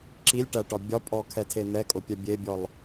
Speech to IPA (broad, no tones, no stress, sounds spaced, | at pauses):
ǁ i lʲ ʈ æ ʈ ɒ bʲ ɒ pʼ ɔ kʰ ɛ tʰ e n̪ ɛ kʼ ʊ pʲ ɛ bʲ e bʲ ɔ lˠ